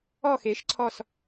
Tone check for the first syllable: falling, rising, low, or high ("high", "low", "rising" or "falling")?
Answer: falling